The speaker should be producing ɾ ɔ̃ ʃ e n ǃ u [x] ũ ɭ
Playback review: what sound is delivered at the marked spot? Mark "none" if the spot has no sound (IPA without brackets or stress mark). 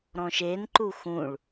x